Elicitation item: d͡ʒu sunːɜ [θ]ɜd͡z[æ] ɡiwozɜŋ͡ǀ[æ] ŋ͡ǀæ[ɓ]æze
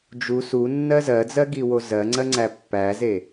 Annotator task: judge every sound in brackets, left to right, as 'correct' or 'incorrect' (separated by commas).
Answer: incorrect, incorrect, incorrect, incorrect